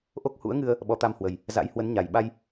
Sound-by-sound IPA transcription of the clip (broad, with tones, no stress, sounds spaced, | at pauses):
ʔ o˦˥ k̚ h ṵ˧˥ ə̯ ŋ ɨ˧ ə̯ | ɓ ɔ˨˦ t̪ a˧ m h w ə˨˩ j | z a̰˧˥ j h w ə˨˦ n ɲ a˨˩ j ɓ a˧ j